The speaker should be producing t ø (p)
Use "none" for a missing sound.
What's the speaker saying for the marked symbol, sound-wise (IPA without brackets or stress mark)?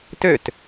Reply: t